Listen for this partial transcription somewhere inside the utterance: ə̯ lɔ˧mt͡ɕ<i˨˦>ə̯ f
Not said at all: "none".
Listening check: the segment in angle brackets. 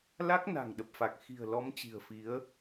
i̤˨˩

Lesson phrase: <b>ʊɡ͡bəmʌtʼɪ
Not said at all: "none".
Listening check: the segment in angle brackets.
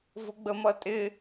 v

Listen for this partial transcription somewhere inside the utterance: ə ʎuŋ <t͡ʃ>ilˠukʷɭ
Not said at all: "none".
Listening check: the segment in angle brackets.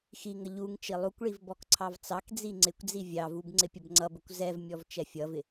t͡ʃ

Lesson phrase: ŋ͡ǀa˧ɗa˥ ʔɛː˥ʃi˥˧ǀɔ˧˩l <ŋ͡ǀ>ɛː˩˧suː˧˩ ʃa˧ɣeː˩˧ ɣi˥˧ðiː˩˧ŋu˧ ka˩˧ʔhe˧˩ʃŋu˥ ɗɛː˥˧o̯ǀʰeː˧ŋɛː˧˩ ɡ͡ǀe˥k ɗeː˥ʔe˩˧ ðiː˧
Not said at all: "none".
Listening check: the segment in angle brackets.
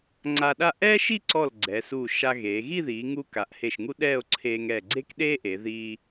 ɡ͡ǀ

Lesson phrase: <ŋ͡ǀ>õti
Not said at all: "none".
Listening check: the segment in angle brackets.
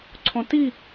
ǀʰ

